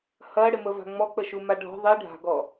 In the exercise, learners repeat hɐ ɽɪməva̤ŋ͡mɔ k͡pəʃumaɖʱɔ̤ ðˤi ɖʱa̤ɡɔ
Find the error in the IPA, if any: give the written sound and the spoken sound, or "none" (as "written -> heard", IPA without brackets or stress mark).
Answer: none